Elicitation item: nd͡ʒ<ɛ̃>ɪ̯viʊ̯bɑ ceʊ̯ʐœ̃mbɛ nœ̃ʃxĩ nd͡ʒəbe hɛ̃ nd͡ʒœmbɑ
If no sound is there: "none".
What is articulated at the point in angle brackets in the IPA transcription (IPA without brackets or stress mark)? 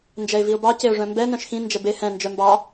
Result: ɛ